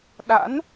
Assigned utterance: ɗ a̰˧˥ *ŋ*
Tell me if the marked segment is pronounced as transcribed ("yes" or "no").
no